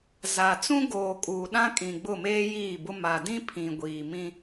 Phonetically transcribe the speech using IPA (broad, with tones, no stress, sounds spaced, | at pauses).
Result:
z a˨ t͡s ũ˦ ɡ oː˨ kʼ uː˨ ɗ ã˦ kʼ ĩ˨ ɡ͡b ʊ˦˨ m eː˦ j iː˦˨ b ʊ˦ m a˨ d ĩ˦ pʰ ĩ˨ ɡʷ iː˨ m ĩ˦